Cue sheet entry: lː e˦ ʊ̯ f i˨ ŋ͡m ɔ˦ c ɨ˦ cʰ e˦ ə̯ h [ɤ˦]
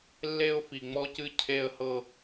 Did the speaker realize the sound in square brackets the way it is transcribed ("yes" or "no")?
yes